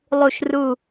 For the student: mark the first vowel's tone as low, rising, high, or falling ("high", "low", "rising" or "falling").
low